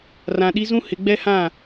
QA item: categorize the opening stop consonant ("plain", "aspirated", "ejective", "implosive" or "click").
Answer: implosive